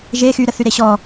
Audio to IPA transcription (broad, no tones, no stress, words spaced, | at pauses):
ʒe xyɾəθyɾe ɕɔ